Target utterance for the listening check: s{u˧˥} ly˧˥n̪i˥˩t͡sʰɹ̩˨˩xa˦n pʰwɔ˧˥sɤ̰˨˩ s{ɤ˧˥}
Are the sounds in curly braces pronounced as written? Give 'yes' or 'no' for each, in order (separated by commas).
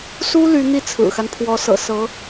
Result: no, yes